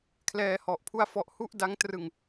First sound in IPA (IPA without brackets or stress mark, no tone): kʰ